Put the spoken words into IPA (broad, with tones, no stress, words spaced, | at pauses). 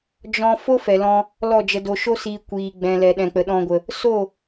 d͡ʒɔ̃˧ fo˦fɛ˨lɔ̃˧ | lɔ˦˨d͡ʒə˧do˧ ʃo˦siː˧ kʷiː˨ ɡ͡bɛ̃˨lɛ˨ ɗɛ̃˨k͡pə˨ɗɔ̃˧ɡʷə˨ | so˦˨